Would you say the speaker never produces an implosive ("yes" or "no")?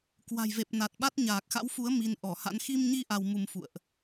no